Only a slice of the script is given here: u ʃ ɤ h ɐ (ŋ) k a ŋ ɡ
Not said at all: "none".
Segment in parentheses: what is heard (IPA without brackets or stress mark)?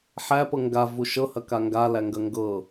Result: none